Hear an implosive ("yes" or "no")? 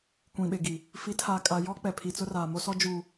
yes